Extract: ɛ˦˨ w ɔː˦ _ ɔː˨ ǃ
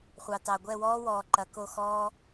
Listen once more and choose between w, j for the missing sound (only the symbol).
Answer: w